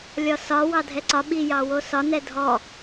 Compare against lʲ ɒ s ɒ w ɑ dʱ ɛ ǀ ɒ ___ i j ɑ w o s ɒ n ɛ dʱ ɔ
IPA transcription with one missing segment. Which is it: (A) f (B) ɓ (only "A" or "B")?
B